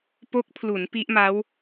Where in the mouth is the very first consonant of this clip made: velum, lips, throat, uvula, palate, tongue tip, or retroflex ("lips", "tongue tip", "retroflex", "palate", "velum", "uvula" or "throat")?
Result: lips